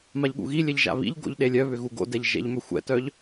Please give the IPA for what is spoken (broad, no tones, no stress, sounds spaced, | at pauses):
m a ʎ ɠ ṵ ɣ i lʲ ɛ ʎ ʒ a̰ β ḭ ʎ ɡ o̰ ʎ ɗ e lʲ œ β ʏ ɣ u ɡ o̰ d ɛ ʎ ʒ ɛ̰ ʎ m ʏ xʷ ɛ̰ t œ ʎ